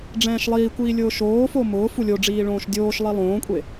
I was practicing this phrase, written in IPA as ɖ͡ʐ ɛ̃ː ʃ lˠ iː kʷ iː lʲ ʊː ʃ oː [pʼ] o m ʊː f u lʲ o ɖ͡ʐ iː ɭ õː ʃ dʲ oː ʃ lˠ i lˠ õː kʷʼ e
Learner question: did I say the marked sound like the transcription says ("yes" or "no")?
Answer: no